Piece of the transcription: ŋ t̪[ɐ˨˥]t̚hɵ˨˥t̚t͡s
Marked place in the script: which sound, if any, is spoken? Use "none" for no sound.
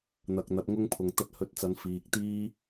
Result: ɐ˧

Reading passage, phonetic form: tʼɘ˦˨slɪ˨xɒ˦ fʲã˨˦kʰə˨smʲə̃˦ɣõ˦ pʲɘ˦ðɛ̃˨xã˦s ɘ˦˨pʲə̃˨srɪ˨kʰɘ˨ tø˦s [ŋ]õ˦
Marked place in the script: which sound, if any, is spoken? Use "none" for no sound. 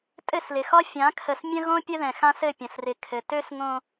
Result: ŋ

